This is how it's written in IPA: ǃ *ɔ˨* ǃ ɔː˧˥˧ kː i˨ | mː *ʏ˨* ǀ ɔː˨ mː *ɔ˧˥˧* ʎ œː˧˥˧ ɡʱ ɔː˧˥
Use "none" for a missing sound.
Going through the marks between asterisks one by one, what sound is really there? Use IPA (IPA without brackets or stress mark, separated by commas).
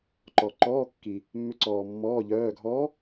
ɔ˨, ʏ˧˥, ɔː˧˥˧